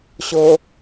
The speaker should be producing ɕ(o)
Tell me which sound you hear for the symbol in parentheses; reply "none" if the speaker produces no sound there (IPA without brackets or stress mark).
o